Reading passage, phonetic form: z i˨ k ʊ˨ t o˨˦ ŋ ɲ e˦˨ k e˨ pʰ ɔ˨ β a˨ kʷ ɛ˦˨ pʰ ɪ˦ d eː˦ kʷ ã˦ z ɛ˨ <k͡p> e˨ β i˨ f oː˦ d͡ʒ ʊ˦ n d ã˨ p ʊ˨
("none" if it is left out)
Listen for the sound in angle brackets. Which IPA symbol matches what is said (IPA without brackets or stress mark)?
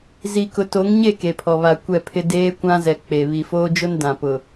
k͡p